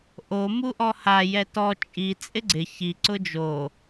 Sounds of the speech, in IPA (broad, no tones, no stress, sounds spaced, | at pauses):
ʔ o m u ʔ ɔ h a j ɛ t ɔ t͡ʃʼ i t͡sʼ ɪ ɡ͡ǀ ɪ ç i ǀ ʊ d͡ʒ o